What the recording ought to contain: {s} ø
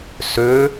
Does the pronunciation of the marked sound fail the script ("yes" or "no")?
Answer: no